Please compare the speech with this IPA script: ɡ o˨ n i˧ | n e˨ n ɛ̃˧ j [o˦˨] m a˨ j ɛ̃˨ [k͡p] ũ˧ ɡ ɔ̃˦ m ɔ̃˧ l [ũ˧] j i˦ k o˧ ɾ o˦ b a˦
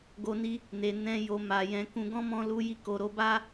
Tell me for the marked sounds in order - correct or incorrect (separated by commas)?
incorrect, incorrect, incorrect